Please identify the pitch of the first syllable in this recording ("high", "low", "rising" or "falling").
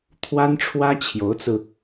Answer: high